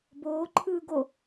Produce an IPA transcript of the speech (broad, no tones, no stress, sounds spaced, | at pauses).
b oː ǃʰ ɯː ɡ o